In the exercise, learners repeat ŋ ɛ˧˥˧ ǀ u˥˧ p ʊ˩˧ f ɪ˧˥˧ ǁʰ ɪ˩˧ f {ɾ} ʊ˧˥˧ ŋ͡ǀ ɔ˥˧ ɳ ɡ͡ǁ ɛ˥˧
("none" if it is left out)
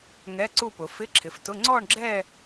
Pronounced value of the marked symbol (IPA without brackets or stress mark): t